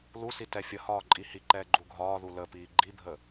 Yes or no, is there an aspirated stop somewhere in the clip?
no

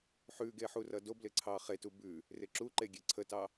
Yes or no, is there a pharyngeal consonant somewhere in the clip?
yes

